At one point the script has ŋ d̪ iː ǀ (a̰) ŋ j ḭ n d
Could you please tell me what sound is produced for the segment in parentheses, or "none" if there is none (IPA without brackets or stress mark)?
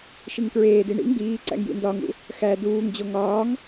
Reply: æ̰